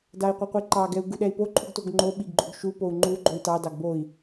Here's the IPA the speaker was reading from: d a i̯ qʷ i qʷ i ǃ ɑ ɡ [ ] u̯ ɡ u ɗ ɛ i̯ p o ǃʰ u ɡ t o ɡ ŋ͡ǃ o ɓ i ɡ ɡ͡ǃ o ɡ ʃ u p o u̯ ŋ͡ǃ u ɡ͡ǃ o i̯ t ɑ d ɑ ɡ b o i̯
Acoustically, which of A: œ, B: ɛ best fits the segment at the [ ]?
B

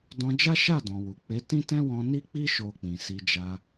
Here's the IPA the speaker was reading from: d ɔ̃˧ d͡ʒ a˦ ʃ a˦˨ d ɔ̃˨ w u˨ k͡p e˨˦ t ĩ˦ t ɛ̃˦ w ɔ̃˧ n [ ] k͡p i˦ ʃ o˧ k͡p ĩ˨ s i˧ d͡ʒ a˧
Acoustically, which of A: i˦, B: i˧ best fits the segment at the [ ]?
A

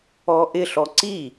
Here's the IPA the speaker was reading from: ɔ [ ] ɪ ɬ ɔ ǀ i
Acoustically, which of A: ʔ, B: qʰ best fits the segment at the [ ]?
A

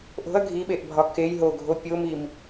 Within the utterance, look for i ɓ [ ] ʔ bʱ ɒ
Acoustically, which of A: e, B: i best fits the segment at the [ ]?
A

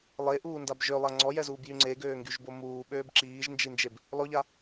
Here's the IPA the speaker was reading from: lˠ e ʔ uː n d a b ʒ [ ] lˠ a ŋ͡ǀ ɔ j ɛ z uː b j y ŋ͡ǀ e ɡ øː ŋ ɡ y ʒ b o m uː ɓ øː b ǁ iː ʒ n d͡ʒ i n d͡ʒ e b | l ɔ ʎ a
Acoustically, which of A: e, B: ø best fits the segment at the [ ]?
B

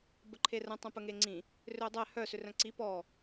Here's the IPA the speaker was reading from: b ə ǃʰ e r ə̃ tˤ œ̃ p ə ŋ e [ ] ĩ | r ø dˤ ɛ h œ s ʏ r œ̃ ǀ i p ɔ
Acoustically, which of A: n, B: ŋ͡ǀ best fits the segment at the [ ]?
B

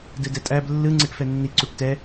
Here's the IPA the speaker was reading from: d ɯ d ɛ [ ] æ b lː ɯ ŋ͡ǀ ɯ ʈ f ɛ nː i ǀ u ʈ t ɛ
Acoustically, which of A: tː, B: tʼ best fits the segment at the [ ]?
B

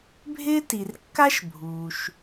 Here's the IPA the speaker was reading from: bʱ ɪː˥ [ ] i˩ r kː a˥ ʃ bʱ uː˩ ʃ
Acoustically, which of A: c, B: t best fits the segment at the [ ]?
B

